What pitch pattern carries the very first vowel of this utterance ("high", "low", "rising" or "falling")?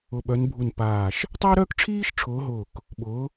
falling